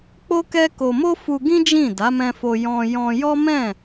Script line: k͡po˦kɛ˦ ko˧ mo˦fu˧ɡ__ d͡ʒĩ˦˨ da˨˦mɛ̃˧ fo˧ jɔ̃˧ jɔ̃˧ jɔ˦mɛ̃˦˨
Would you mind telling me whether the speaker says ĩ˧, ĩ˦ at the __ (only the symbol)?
ĩ˦